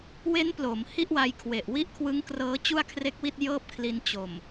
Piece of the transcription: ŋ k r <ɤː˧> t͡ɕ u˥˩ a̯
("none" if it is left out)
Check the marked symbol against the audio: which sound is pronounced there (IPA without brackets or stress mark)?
ɤː˦˥